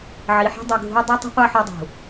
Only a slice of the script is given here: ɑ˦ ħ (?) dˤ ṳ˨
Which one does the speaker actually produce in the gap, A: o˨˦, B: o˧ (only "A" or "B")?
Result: B